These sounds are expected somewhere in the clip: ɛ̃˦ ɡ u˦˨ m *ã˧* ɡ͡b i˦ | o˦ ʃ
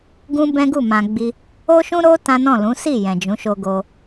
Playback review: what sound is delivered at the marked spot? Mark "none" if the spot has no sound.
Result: ã˧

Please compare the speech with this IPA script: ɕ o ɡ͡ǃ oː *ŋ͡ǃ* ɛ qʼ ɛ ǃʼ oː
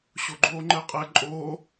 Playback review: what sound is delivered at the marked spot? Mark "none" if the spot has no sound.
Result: ŋ͡ǃ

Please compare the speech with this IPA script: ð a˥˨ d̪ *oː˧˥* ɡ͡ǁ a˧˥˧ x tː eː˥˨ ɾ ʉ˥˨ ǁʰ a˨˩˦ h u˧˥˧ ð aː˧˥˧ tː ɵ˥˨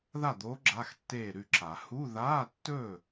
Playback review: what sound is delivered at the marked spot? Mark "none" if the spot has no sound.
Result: oː˧˥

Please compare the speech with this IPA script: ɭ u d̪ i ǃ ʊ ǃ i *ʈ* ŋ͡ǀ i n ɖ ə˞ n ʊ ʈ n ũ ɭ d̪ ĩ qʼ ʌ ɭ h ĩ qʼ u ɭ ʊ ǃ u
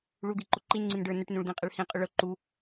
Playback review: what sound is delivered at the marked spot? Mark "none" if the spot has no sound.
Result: n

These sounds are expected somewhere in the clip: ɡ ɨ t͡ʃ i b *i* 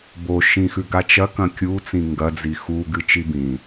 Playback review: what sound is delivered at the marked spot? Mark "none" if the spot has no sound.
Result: ĩ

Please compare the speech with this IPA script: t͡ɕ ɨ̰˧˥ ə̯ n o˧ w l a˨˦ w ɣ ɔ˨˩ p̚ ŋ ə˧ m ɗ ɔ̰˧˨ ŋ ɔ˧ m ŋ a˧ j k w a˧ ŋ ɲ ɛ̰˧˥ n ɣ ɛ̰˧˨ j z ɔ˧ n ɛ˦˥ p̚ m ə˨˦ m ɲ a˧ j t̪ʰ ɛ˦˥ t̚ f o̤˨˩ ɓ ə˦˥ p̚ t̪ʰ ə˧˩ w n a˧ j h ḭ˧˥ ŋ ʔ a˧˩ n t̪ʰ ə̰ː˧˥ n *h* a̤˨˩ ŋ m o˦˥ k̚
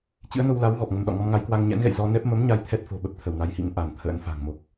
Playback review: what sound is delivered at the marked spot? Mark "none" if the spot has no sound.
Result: f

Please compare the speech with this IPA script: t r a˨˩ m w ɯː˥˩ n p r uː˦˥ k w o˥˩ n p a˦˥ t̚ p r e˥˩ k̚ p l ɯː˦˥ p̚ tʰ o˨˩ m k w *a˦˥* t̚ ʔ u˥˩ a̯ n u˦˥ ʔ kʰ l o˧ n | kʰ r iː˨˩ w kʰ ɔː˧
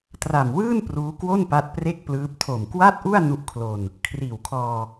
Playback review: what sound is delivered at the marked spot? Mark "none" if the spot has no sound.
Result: a˥˩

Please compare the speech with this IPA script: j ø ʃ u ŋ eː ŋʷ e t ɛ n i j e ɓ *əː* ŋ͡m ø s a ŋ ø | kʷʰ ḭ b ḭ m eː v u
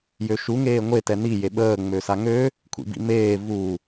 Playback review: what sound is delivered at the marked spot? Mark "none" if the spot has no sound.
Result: əː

